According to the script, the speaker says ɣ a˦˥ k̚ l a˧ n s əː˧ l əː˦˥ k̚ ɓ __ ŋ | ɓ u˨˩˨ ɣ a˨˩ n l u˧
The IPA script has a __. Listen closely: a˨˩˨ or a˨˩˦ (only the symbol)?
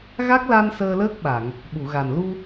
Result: a˨˩˨